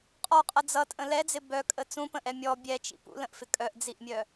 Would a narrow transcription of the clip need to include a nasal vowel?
yes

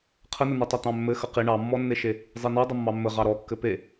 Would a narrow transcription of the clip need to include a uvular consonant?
yes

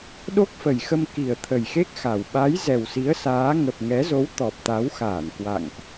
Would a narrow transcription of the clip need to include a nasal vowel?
no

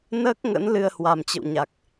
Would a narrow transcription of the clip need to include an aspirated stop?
no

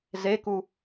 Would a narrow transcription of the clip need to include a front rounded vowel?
no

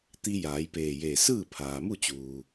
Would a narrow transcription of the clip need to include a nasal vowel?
no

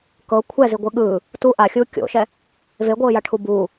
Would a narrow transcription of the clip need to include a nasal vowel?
no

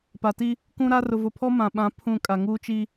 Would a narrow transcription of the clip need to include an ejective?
yes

